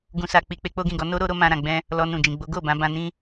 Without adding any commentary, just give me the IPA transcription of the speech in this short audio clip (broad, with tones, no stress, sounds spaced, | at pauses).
ɡ ũ˨ s a˨ k͡p i˨ k͡p e˧ k͡p o˦ ɡ ĩ˦˨ ɡ ɔ˨˦ n o˦ ɾ o˦ ɾ o˦ m ã˧ ɾ ã˨ ɡ͡b ɛ̃˧ | l ɔ˧ n ũ˨ d͡ʒ ĩ˨ ɡ͡b o˨˦ ɡ o˦˨ b ã˨˦ b ã˧ n ĩ˦